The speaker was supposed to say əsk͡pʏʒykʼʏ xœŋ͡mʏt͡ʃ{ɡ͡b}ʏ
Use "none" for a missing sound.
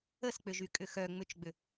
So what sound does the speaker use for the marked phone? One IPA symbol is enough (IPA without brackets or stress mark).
ɡ͡b